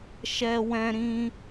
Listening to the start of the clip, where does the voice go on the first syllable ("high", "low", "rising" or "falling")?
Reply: high